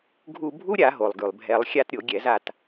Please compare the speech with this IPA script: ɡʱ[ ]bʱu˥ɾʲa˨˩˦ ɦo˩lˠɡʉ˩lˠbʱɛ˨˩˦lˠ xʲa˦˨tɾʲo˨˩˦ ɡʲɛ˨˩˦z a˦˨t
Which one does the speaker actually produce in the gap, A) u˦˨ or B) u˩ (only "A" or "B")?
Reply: A